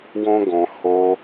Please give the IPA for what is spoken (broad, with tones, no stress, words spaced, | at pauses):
wɔ̃˦ɡɔ̃˧ ho˧